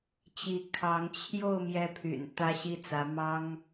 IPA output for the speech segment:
t͡ɕi˥˩ kʰɑ˧˥ŋt͡ɕʰjo˥˧ʊ̯ mjɛ˥˩pʰy̰˨˩n t̪ä˥ɕi˥˩t͡sä˧˥ mɑ˥ŋ

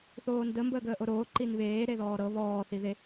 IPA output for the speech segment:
θoːndə mbəːɡəːʔoɾoː ǃinβeː ɾeðɔːɾɤ βɔː θiðe

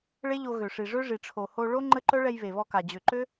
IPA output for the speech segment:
ɭe˦ʎo˧ ɣø˨ʂi˨ ʐø˦ʐi˨ʈ͡ʂʰo˨ ho˧ ɭo˦ ŋ͡ǃə˦ ǃœ˦ɭɛ˧j βe˨βɔ˧ka˨ d͡ʑø˨ǃø˦

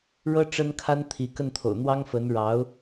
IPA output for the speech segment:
ɻɤ˥ ʈ͡ʂə˥nkʰa˥nt̪ʰi˧˥ kə˥˩nt̪ʰo̰˨˩ʊ̯n̪wɑ˥ŋfə˧˥n ɻɑ˧˥ʊ̯

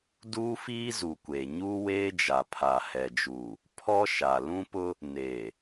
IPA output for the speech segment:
duː˦fiː˦zu˨kʷe˨ ɲuː˦weː˦d͡ʒa˨ pʰa˨hɛ˨d͡ʒuː˨ | pʰɔ˦ʃa˨ lũ˦pʊ˦ | neː˨

